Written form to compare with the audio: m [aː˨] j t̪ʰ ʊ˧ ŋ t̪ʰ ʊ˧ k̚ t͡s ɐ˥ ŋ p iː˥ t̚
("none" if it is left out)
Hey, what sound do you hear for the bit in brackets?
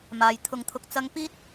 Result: aː˨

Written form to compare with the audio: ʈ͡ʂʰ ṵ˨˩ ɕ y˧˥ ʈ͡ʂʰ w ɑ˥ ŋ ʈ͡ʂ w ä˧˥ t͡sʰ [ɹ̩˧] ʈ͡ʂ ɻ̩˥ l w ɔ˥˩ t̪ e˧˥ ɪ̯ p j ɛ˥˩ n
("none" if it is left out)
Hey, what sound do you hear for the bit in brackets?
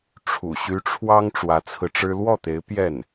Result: ɹ̩˧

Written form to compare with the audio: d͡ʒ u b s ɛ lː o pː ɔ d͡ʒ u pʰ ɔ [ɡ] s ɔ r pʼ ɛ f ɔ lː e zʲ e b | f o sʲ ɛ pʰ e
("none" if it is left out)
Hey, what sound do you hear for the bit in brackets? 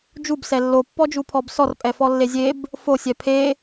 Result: b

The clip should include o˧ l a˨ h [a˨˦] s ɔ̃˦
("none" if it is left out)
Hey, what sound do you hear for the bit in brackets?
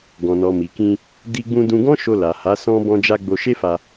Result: a˨˦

